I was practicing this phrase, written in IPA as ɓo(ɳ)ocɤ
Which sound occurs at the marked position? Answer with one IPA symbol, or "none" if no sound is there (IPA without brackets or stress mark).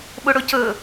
ɽ